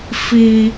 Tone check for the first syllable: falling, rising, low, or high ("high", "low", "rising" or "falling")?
low